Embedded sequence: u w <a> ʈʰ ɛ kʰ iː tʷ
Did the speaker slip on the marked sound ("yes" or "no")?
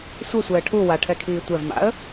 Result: no